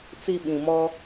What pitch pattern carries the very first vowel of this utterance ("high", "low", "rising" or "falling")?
low